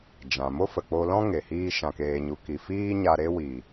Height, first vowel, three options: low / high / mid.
low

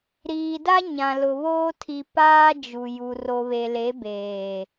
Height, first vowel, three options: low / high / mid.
high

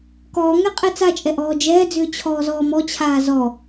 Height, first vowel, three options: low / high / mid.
mid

